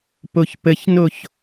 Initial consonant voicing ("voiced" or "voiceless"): voiceless